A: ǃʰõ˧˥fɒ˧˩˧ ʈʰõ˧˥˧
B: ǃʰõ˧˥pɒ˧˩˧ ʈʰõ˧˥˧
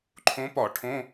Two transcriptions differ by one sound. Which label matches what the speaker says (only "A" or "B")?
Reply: B